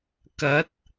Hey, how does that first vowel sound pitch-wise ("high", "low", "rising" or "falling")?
rising